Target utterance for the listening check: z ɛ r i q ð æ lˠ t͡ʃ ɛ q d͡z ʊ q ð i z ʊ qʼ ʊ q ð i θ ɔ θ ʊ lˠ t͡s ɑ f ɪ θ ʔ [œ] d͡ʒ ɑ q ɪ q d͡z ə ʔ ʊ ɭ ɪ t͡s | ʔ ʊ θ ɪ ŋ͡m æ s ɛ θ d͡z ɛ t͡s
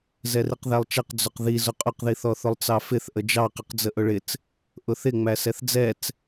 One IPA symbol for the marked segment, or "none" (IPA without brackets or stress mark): ə